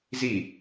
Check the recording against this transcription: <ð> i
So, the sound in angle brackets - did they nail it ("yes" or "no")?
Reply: no